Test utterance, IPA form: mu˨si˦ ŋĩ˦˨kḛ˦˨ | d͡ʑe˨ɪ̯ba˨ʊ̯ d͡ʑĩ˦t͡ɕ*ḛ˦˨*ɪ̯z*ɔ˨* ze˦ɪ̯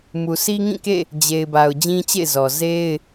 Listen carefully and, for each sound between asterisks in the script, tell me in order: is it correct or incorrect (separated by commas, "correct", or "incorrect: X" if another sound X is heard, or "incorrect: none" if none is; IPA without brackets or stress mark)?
correct, correct